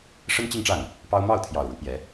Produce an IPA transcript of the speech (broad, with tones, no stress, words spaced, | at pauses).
ʂə˥nt͡ɕi˥˧ŋʈ͡ʂa˥˩n | pɑ˥ʊ̯ mɑ˥˩ʊ̯t̪ʰjɑ˨˩ʊ̯ ɻu˧˥pjɛ˧˥